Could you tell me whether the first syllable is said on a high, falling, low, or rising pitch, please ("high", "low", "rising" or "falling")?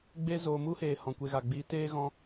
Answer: high